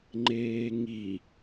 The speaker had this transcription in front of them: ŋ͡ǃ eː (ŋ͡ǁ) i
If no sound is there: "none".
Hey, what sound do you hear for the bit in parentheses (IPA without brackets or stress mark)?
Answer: ŋ